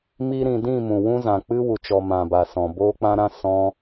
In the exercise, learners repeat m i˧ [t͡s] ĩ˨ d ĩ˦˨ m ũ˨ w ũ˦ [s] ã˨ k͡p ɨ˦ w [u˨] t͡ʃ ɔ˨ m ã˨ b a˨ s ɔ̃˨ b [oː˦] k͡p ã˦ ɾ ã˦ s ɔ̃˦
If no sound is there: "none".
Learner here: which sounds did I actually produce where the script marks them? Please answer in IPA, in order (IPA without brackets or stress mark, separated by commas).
ɾ, z, u˨, oː˦